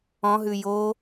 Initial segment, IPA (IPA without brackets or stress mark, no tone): ɔ̃